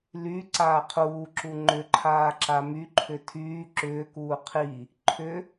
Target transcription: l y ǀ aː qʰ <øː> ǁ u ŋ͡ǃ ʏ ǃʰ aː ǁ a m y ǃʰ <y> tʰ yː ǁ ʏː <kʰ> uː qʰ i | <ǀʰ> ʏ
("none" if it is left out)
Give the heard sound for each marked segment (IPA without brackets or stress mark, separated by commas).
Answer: uː, ʏ, k, ǃʰ